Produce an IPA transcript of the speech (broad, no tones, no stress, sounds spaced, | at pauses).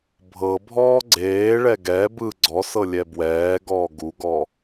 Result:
bʱ ɤ bʱ ɔː ɡ͡ǀ eː ɭ ɛ ɡ ɛ b ɯ ɡ͡ǀ ɔ s ɤ lʲ ɛ b w ɛː ɡ ɔː ɡ u ɡ ɔ